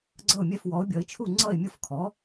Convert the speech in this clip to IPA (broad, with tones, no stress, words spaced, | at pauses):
ɡ͡ǀʌ˥˩ʊ̯mʲɛ˥˩fwɔ˩˥ʊ̯bʲʌ˩˥ɪ̯ t͡ʃʰu˥˩ŋ͡ǀʌ˥˩ɪ̯mʲʊ˥˩fkʰɔ˩˥